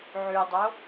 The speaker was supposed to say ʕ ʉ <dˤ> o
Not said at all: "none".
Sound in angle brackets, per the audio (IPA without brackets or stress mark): dˤ